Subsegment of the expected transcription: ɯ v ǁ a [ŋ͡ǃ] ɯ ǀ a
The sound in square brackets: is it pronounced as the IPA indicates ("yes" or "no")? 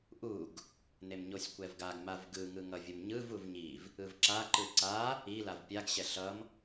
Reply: no